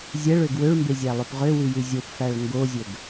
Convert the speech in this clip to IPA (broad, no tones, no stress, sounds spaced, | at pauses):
zʲ ɛ ɭ ø ɡ w ø ɭ m b e zʲ æ lˠ ø p ʁ ø w ʉ j ʉ zʲ o p f æ ɭ ŋ ɡ o zʲ ɵ ɡ